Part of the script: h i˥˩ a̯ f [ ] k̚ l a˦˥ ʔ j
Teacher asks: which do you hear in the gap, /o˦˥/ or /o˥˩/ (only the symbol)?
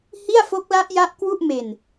o˦˥